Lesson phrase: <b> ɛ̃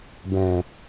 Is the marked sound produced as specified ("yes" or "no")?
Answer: yes